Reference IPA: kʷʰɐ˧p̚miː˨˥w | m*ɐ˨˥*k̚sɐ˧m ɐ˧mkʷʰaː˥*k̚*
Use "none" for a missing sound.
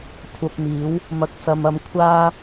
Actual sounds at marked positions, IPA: ɐ˧, none

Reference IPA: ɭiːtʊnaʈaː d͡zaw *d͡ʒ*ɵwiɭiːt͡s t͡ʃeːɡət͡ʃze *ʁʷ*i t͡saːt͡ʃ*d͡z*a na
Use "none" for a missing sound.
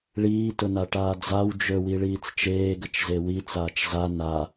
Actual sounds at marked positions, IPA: d͡ʒ, w, z

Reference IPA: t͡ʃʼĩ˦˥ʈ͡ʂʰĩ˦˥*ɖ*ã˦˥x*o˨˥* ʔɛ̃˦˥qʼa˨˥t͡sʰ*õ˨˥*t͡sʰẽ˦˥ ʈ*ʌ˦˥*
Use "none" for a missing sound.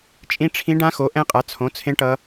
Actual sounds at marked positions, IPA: ɖ, o˨˥, õ˨˥, ʌ˦˥

